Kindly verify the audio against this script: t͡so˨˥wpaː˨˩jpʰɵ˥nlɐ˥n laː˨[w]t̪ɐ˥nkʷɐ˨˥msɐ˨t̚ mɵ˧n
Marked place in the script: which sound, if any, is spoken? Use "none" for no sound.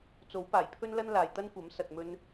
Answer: j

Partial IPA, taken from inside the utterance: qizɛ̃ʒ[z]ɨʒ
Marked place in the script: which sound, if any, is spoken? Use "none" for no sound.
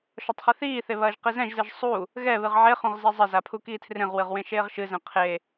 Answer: z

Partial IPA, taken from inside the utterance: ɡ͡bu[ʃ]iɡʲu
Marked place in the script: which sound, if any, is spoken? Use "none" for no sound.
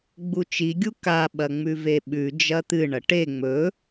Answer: t͡ʃ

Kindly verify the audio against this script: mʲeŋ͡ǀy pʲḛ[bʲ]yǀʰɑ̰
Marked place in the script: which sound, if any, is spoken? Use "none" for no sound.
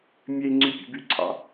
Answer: b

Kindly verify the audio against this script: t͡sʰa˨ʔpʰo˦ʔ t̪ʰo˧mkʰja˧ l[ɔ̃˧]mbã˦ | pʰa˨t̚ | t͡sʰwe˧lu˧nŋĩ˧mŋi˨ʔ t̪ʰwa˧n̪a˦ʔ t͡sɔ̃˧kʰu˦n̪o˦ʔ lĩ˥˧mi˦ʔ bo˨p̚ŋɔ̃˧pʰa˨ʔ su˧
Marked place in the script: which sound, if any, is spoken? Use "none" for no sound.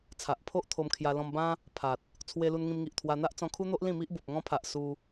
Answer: ɔ̃˧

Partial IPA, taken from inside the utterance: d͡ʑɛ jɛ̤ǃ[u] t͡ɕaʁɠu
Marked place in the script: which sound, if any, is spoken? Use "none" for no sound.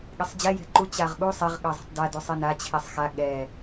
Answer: u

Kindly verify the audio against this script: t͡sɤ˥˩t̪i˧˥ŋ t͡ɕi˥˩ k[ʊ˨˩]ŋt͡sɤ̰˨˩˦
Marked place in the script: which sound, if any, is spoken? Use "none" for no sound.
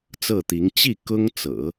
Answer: ʊ˥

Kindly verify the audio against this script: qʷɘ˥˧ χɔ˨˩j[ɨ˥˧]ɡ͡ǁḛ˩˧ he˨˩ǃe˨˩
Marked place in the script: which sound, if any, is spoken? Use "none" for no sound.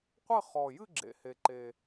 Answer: ɨ˥˧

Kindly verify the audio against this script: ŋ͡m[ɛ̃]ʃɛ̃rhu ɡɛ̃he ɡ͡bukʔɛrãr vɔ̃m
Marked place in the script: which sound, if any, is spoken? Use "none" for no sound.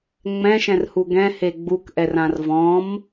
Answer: ɛ̃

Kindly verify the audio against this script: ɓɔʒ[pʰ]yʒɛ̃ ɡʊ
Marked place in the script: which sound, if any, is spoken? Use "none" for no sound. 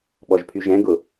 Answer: pʰ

